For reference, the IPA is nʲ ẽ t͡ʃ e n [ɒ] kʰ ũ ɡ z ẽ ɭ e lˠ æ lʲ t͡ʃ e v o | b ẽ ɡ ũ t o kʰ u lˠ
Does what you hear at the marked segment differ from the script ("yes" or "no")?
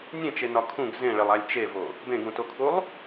no